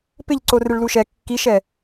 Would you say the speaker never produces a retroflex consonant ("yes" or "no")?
no